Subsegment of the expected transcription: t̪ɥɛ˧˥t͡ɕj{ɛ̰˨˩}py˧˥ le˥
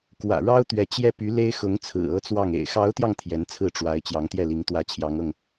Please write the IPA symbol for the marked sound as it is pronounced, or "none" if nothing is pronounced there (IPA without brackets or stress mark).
ɛ˥